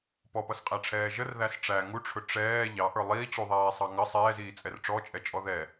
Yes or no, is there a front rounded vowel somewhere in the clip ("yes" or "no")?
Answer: no